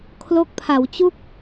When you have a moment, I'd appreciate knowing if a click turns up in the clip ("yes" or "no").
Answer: no